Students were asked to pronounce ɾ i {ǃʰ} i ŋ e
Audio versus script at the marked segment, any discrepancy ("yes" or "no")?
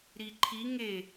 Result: no